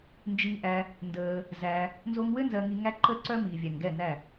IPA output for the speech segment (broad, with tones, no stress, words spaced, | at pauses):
nd͡ʒi˧ʔæ˧ | ndəː˧ | zæ˧ | nzo˧ŋwɘ˦ nzɜ˧ŋi˧ŋæ˦ ǃə˦ǀœ˦ miː˨vʲæ˨ŋɡɛ˦˨næ˦˨